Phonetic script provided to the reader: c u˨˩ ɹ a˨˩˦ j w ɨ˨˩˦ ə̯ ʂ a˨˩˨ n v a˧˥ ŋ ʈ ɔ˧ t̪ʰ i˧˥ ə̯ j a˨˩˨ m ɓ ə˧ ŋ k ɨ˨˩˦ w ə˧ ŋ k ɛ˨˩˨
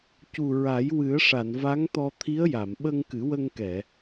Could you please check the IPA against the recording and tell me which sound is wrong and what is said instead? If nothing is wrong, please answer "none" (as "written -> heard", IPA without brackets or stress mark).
ʈ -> t̪